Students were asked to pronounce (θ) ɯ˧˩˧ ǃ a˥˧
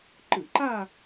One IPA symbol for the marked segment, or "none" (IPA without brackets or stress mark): ǃ